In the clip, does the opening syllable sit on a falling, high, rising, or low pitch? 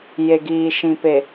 low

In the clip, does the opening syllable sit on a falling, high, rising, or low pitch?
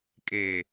low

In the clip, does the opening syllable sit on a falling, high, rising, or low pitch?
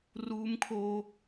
high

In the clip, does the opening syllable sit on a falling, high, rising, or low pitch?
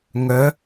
rising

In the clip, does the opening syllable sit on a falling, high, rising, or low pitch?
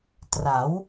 rising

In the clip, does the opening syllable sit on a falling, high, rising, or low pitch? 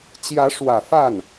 rising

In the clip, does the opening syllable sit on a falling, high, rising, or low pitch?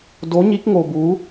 rising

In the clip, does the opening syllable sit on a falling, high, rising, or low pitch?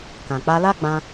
low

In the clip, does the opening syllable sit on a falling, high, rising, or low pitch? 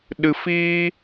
low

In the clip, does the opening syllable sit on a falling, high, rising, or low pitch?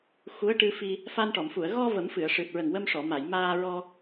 rising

